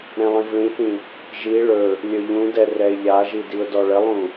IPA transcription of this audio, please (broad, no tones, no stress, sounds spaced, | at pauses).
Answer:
ɾ ɛ̃ lˠ ĩ v ɭ ĩ θ ĩ | ʒ i ɭ ɵ | lʲ ɵ ʎ ũ d ɛ r ɛ ɪ̯ ʎ a ʒ i d i ʊ̯ d ɔ ɭ ə lˠ ũ